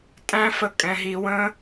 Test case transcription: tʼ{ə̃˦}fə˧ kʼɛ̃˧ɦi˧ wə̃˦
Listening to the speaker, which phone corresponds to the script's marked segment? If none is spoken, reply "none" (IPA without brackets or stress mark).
æ̃˦